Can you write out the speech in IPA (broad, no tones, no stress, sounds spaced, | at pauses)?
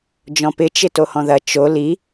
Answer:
d͡ʒ ɔ̃ p ɪ t͡ʃ ɪ t o h ɔ̃ ð ɐ t͡ʃ o l i